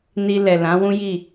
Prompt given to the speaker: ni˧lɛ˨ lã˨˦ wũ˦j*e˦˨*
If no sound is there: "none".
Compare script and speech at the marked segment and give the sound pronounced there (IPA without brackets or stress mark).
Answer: i˦˨